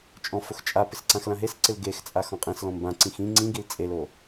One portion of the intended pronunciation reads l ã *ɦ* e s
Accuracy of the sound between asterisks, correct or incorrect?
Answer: correct